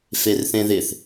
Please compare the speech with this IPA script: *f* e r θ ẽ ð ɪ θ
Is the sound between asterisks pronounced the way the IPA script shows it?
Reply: yes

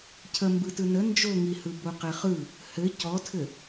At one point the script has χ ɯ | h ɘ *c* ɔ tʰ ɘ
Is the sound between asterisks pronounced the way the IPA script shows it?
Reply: yes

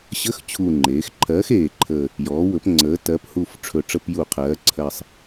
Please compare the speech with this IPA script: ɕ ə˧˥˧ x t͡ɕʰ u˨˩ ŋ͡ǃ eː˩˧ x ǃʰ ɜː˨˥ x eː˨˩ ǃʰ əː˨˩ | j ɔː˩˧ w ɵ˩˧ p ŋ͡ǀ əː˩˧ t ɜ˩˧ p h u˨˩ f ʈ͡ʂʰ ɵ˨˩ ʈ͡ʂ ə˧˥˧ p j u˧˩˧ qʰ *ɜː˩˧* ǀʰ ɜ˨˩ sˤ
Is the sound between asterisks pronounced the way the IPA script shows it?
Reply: yes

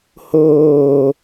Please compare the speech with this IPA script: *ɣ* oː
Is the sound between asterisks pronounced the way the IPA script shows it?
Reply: no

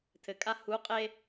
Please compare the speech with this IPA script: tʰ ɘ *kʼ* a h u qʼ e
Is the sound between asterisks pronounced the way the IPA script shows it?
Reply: yes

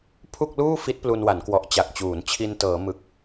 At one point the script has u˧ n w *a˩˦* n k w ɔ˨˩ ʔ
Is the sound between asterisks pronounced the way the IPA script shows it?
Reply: yes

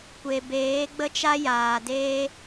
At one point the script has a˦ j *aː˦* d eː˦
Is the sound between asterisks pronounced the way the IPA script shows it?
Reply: no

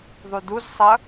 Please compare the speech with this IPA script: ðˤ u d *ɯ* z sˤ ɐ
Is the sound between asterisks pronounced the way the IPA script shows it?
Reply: no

